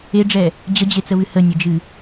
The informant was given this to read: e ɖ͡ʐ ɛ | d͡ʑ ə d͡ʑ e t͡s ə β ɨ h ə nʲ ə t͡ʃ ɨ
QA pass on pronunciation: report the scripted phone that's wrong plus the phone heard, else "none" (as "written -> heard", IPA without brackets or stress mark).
t͡ʃ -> d͡ʒ